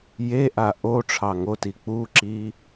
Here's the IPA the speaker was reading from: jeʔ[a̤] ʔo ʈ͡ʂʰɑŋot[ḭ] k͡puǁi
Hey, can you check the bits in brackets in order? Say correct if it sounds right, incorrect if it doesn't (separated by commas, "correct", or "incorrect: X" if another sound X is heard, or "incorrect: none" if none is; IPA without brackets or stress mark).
incorrect: a, incorrect: i